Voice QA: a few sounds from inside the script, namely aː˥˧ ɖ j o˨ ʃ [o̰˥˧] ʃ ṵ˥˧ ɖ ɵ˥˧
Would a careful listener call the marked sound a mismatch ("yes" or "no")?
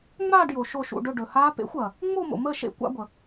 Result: yes